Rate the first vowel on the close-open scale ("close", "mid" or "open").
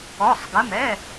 mid